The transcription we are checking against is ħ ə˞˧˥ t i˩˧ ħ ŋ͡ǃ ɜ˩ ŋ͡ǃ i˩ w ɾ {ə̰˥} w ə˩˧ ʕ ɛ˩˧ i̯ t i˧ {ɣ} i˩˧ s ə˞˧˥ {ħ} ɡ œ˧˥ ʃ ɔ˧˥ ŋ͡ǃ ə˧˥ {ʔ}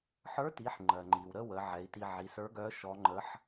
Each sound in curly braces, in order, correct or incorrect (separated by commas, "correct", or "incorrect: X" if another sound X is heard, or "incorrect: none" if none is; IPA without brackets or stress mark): incorrect: ə˥, incorrect: ʕ, incorrect: none, incorrect: ħ